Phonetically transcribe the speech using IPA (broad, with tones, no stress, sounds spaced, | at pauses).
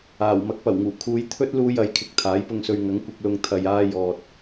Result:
aː˨˩ w m ɐ˨˥ k̚ p ɐ˨˩ w ŋ uː˨˩ kʰ uː˨˧ j t̪ʰ ɵ˥ t̚ l uː˧ j ɐ˨˥ j kʰ ɪ˨˥ k̚ t̪ʰ aː˨˥ j p ʊ˧ ŋ s ɵ˧ ɥ ŋ ɐ˨˥ ŋ kʷ ɪ˧ k̚ l ʊ˧ ŋ t̪ʰ ɐ˧ j aː˥ j ɔː˧ t̚